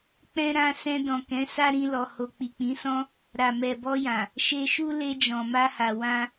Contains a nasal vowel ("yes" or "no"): yes